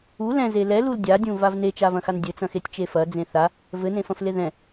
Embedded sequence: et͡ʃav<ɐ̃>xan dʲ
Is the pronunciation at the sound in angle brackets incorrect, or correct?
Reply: correct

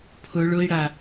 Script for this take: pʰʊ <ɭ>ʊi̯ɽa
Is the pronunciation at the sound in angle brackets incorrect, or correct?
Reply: correct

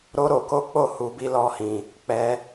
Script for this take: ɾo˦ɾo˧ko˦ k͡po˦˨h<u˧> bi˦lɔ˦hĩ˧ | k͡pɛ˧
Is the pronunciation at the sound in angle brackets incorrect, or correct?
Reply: correct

